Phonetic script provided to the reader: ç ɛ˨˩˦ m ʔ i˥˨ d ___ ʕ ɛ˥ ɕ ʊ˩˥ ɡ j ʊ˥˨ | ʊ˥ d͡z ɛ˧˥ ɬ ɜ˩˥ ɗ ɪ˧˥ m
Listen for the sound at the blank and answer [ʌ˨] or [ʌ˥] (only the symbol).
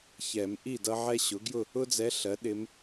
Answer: ʌ˥